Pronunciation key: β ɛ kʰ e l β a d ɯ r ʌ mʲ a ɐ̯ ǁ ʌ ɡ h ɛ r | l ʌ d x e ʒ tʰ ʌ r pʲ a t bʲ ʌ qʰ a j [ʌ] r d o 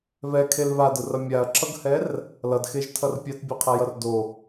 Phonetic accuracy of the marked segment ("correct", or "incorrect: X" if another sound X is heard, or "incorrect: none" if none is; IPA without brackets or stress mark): correct